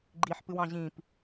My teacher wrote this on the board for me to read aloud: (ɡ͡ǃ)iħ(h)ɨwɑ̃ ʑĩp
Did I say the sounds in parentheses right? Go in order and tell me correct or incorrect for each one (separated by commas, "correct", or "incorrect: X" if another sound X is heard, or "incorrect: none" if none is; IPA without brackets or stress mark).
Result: correct, incorrect: p